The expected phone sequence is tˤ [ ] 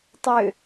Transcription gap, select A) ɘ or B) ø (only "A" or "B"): B